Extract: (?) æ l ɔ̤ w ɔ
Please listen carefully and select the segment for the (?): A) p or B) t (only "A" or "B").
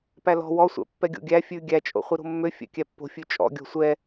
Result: A